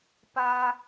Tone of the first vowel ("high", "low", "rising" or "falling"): high